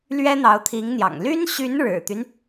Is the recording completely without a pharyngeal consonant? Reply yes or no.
yes